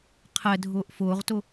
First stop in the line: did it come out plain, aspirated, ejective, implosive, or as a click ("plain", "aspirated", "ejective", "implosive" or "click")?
aspirated